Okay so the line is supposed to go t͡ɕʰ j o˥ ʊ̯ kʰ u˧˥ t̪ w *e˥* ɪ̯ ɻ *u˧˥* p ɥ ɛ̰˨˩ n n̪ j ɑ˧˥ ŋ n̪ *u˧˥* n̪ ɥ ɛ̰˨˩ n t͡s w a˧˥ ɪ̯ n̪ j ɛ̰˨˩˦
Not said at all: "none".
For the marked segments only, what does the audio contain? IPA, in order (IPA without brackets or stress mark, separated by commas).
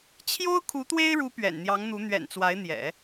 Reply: e˥, u˧˥, u˧˥